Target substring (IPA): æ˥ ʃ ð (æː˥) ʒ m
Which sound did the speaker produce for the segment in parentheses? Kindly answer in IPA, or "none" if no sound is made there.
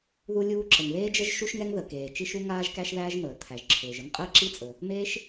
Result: æː˥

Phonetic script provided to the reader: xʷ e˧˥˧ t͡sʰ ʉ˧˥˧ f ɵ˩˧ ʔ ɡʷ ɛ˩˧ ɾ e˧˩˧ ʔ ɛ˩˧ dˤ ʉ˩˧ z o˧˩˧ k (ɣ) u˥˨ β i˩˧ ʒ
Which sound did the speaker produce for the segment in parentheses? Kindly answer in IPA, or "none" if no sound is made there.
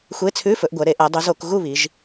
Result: ɣ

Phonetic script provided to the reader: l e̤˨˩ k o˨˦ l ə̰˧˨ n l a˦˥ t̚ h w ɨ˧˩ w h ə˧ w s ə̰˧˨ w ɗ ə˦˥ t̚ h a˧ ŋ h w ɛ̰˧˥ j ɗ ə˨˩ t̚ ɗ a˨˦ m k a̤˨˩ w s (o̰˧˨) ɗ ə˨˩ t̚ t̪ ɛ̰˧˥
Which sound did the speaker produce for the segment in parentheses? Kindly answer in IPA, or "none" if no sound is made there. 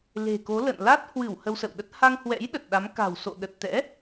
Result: o̰˧˨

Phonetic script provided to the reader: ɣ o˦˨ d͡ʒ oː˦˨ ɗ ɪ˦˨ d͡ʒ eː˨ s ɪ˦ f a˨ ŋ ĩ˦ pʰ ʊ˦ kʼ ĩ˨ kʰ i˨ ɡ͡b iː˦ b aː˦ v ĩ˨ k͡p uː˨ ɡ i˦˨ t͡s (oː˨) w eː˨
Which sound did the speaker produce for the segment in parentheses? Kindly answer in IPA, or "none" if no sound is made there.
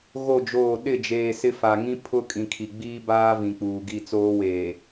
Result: oː˦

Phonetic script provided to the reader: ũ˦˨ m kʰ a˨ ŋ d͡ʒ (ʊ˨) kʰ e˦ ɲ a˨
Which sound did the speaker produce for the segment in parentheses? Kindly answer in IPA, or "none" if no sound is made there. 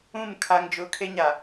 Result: ʊ˨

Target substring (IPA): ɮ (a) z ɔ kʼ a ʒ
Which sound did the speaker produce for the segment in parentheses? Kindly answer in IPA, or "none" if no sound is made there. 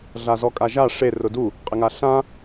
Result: a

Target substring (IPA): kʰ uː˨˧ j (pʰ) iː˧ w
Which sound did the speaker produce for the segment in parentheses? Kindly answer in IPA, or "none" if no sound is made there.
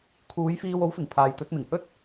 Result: f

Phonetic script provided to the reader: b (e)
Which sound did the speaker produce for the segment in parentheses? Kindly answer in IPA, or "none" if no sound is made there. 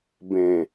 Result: ẽ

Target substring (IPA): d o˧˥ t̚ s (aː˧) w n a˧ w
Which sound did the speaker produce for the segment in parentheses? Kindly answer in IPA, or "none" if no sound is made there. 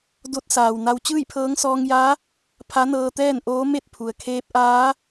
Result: aː˩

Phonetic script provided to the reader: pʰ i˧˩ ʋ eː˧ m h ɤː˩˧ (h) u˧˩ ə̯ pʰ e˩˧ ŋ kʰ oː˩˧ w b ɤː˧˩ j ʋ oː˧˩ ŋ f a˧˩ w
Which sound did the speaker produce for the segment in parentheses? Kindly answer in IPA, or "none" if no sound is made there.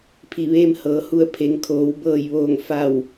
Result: h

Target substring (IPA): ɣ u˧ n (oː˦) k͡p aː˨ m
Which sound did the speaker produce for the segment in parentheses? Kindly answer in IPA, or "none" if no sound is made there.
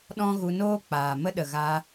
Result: oː˦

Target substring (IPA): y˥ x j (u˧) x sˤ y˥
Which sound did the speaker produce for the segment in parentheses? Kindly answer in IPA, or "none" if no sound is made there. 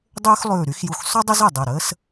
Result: u˧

